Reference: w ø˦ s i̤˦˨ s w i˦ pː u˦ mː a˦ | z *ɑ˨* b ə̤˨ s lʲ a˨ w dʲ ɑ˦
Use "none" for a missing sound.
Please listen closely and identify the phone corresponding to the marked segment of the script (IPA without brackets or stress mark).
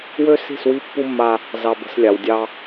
ɑ˨